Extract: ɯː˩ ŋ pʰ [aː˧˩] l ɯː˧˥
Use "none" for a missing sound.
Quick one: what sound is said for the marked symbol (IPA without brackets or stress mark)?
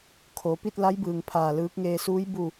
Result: aː˧˩